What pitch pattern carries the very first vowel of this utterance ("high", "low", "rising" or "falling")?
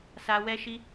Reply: high